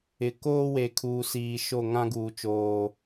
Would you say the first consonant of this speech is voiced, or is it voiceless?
voiceless